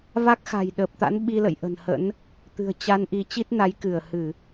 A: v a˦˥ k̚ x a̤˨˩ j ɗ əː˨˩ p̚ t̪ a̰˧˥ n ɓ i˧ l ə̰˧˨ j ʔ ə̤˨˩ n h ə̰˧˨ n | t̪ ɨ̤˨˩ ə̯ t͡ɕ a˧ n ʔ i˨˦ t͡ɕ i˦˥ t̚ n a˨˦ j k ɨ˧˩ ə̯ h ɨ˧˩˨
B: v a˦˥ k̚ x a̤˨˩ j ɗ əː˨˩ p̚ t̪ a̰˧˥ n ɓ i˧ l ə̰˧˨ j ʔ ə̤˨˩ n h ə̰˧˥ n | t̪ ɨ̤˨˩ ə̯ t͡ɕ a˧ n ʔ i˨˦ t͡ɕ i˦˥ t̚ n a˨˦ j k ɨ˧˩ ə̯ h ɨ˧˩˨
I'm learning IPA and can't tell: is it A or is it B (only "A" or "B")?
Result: B